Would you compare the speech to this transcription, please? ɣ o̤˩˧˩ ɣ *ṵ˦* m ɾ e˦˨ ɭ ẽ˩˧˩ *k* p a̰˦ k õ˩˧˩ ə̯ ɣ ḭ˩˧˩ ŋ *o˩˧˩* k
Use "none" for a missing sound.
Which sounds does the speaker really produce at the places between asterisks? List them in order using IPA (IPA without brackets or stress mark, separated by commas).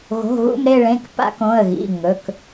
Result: ṵ˦˨, k, ɵ˩˧˩